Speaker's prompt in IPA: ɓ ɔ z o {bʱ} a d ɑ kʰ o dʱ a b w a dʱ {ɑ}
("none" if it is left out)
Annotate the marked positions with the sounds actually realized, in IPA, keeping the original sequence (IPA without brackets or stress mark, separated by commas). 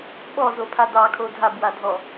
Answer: pʰ, ɔ